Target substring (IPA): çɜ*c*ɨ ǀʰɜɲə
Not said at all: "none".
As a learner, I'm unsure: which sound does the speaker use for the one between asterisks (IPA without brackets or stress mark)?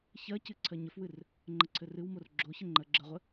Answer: c